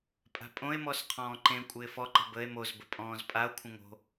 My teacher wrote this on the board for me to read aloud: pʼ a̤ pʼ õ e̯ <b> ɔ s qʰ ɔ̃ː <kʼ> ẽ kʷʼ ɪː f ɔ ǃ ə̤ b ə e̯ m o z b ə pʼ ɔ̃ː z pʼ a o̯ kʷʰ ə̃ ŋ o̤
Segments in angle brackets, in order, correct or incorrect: incorrect: m, incorrect: ǃ

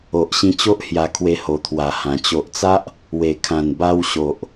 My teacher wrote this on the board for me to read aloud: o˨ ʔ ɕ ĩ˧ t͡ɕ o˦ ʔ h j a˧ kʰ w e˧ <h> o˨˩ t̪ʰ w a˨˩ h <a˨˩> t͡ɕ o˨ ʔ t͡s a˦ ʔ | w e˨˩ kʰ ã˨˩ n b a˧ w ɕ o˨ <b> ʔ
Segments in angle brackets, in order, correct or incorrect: correct, incorrect: ã˨˩, incorrect: none

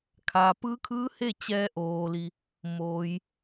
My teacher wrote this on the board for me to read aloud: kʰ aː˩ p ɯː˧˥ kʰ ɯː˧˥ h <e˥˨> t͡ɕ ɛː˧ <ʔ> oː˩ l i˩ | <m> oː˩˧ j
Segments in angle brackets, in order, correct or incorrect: correct, correct, correct

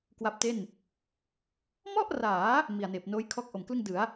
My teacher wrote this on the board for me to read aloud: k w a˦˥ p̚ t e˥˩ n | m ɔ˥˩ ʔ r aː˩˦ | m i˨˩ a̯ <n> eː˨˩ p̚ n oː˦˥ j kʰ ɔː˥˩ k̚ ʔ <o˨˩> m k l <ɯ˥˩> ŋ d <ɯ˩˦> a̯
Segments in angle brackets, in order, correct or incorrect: correct, correct, correct, correct

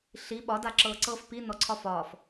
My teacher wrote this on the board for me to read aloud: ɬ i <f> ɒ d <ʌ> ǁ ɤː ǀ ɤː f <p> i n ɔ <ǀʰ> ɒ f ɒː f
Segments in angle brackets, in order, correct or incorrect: incorrect: ɓ, incorrect: a, correct, correct

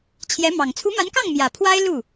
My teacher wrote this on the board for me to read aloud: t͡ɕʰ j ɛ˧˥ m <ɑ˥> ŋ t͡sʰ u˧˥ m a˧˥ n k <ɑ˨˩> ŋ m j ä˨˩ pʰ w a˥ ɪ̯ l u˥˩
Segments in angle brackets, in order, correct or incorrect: incorrect: ɑ˨˩, incorrect: ɑ˥˩

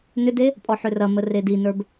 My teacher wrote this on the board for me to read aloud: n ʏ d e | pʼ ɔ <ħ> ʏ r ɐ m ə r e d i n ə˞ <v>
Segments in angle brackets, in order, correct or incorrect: correct, incorrect: b

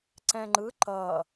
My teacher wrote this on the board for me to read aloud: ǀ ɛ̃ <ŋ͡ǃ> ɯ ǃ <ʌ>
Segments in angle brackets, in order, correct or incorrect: correct, correct

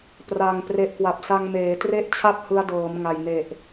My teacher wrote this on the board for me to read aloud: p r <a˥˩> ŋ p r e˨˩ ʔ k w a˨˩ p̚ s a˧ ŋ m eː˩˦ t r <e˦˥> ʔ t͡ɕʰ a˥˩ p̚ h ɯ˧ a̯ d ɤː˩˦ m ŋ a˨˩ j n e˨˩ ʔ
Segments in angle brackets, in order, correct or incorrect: incorrect: a˨˩, incorrect: e˥˩

